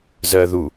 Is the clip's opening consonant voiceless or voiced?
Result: voiced